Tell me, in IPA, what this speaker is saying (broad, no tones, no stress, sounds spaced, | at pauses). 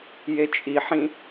j e t͡ʃʼ i ħ ĩ